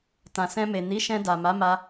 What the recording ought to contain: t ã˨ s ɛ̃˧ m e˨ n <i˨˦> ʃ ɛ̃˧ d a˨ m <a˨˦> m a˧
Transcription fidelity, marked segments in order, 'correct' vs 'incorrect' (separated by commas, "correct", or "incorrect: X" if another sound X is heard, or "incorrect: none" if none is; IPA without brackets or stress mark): correct, correct